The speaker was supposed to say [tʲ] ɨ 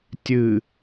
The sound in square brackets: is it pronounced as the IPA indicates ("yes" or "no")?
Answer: yes